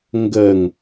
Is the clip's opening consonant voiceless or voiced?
voiced